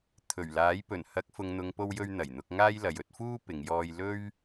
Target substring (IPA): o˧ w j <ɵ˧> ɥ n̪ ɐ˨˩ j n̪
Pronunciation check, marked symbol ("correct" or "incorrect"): correct